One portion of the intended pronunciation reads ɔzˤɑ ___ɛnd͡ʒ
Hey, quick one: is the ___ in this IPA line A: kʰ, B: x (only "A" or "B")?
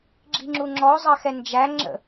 B